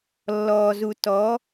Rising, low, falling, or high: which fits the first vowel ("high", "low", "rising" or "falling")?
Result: low